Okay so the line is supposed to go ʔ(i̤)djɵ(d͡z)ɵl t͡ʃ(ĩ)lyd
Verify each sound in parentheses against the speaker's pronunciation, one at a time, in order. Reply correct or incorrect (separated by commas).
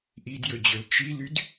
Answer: incorrect, incorrect, incorrect